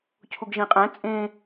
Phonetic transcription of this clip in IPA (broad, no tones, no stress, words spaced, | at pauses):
cʰuɡʒĩqʼæ̃ t͡sʼẽ